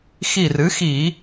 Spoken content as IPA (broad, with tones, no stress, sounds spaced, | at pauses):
x i˧˩ r ɨ˩˥ x i˧˩˧